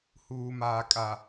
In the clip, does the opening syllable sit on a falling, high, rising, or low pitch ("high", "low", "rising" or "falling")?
low